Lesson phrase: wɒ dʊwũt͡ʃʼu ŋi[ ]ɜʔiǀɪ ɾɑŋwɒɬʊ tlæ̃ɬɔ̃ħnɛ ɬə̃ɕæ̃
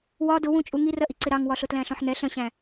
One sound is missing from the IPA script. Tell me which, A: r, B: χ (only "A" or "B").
A